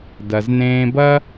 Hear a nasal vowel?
yes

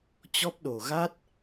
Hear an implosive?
yes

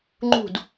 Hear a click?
yes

